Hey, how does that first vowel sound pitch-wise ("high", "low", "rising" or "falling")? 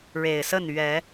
low